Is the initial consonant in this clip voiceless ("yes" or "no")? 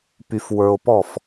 yes